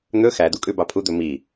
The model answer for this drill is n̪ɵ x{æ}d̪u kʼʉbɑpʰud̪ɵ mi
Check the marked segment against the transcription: correct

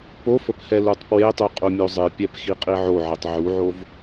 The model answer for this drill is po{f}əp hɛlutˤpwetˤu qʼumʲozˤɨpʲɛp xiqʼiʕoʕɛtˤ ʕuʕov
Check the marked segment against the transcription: correct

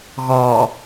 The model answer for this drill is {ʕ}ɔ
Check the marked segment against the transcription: incorrect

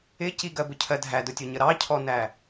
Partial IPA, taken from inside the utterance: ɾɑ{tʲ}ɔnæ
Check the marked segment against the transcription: incorrect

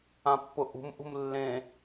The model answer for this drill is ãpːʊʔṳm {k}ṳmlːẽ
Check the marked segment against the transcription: incorrect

